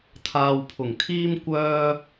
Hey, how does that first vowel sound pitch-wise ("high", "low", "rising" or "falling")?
low